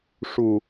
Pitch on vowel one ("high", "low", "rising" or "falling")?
low